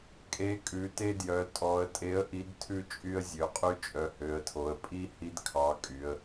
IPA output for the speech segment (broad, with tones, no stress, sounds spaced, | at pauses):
kʼ e˩˧ kʼ ʉ˩˧ t e˦ d j œ˩˧ tʼ ɔ˩˧ ə̯ tʼ e˨˥ ə̯ ʔ i˨˥ d tʰ ʉ˦ t͡ʃʼ y˦ ə̯ zʲ ø˩˧ qʼ y˦ t͡ʃʼ œ˩˧ h ø˩˧ ə̯ tʰ o˩˧ ə̯ pʼ i˦ h i˦ d kʰ ɑ˨˥ kʼ y˩˧ ə̯